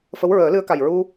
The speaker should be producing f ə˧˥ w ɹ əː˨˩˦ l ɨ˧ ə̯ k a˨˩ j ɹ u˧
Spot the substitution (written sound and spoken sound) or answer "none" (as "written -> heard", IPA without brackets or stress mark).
none